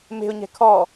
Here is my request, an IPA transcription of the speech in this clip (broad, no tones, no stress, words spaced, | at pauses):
me̤ʊ̯ɲɛ̤ kʰɔ